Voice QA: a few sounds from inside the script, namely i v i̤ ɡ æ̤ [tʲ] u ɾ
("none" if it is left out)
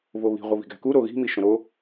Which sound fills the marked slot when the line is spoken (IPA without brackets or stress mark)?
k